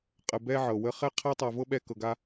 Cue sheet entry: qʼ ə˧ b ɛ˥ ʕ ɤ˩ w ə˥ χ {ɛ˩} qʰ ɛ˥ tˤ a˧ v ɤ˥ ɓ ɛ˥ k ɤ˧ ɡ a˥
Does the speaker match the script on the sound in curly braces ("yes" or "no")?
no